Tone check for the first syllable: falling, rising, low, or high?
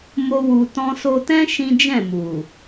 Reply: high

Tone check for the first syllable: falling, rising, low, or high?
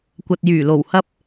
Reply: low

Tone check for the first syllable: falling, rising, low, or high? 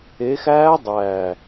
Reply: rising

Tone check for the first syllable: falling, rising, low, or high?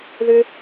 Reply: high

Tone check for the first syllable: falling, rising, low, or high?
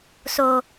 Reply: low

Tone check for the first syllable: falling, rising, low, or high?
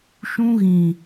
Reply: high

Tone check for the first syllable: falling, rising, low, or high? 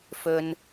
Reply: low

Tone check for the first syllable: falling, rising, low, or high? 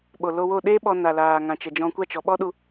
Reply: low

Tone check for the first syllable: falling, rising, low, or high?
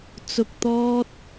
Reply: low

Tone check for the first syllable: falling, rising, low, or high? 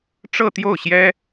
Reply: falling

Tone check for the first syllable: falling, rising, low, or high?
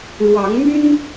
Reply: rising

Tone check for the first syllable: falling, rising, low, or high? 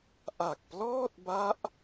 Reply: low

